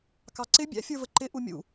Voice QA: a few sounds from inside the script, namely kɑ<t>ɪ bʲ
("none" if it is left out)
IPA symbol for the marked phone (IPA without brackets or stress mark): ǀ